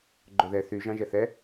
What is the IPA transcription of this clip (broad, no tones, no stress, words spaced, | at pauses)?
ɡ͡ǃoðɛ θy ʒɑ̃ʒɛθɛ